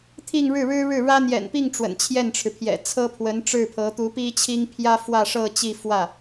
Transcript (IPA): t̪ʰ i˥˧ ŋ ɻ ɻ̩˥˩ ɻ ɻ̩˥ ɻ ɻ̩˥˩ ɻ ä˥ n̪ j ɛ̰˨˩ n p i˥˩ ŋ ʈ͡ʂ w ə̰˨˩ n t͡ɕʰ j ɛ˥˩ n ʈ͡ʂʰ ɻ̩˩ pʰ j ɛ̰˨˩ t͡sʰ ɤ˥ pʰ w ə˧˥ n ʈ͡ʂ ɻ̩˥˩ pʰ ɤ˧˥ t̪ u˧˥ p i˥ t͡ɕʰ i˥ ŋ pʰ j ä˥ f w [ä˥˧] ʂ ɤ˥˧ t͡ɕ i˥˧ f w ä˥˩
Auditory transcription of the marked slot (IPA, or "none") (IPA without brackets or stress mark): ä˥˧